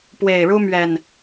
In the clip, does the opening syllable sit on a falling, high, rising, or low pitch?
low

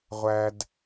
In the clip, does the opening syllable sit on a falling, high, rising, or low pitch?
low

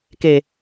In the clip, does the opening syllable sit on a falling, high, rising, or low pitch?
low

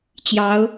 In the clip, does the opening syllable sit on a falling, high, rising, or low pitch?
rising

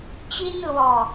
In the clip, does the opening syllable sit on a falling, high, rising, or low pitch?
high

